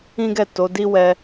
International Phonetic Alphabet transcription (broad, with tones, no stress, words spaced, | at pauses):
ĩ˦ɡɛ˦˨ to˨˦di˦ wɛ˧